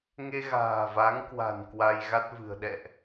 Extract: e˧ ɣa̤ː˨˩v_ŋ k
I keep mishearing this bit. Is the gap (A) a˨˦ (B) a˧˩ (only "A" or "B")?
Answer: A